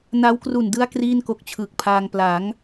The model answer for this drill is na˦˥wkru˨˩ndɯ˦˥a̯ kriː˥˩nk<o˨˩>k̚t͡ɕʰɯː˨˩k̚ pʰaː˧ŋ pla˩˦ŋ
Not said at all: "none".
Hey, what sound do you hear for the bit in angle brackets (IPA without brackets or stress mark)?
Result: o˦˥